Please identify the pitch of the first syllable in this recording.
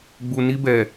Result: low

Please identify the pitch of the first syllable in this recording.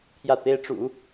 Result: falling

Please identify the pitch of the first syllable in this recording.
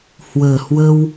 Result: low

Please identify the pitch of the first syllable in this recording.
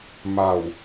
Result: low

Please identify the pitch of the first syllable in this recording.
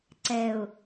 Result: low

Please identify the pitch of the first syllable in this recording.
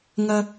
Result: low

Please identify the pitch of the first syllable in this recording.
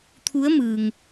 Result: rising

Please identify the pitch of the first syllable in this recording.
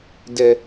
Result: low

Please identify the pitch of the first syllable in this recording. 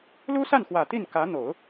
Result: high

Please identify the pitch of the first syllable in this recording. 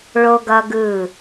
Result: high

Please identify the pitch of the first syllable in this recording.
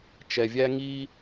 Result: low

